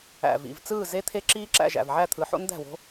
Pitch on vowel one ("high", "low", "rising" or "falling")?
low